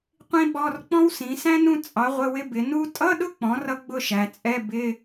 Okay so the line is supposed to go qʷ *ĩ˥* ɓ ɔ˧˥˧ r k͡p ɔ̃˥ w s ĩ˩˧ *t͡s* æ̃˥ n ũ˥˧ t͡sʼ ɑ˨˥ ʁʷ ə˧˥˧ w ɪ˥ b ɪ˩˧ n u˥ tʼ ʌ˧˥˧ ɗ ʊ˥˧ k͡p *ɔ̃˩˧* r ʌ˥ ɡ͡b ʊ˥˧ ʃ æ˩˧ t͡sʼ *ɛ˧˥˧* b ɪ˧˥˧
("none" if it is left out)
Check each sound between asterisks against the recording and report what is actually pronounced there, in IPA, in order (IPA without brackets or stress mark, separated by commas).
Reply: ĩ˥, s, ɔ̃˩˧, ɛ˧˥˧